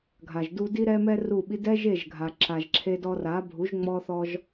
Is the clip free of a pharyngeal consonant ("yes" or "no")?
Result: yes